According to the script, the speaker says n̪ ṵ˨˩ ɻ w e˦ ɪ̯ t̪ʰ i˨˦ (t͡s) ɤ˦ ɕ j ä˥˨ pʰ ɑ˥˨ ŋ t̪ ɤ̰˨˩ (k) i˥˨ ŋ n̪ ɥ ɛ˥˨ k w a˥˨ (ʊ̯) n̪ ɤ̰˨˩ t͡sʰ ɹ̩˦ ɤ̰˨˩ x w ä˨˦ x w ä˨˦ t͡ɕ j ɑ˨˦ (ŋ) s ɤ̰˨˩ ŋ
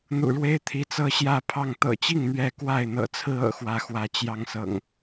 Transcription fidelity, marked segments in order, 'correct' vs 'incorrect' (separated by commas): correct, incorrect, incorrect, correct